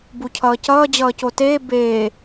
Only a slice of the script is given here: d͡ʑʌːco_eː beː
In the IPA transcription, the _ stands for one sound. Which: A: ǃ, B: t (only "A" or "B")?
B